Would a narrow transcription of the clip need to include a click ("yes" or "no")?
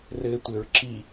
yes